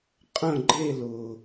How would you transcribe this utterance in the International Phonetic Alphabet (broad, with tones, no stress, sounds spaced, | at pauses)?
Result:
qʼ ə̃˥˧ ɡ͡ǃ e˥˧ l ʊː˩